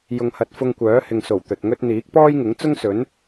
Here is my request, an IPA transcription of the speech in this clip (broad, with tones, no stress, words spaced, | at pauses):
jʊ˨ŋhɐ˨t̚ fʊ˧ŋkʷœː˨˥hɪ˨ŋso˨˩w t̪ɵ˨t̚ŋɵ˥t̚ n̪iː˨˥k̚pɔː˥jŋɪ˨˥ŋ t͡sʊ˥ŋsɵ˨˥n